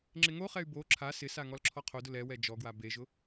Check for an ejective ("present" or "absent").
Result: absent